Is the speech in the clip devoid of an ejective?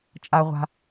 no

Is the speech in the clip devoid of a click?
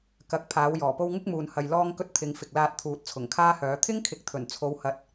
yes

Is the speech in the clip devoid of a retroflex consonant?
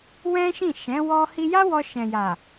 yes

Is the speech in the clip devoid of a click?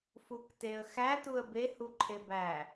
no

